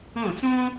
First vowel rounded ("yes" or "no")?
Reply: yes